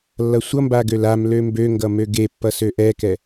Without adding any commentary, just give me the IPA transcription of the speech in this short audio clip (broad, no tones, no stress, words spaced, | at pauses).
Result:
lːʌsʷʌmba ɡølamlø mbøŋɡʌ møɡepːʌ søʔɛkɛ